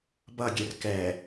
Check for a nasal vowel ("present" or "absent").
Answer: absent